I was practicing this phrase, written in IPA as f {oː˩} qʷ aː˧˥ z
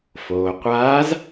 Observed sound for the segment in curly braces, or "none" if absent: oː˩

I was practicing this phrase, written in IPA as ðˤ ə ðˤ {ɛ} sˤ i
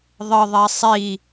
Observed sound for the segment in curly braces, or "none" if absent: ɛ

